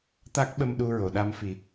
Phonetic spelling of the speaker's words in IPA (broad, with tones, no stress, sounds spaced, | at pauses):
t̪ a˦˥ k̚ ɓ ə˧ m ɗ u˧ ɹ o˨˩˨ ɗ a˧ m f i˨˩˦